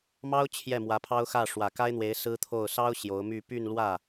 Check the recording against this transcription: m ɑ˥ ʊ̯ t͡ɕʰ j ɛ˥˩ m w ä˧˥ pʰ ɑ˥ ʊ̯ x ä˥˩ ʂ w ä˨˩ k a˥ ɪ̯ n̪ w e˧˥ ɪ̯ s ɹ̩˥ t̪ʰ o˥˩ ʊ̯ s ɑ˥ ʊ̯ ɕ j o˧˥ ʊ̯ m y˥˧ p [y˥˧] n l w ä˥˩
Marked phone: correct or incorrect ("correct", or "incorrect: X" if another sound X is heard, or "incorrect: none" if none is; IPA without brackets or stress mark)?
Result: correct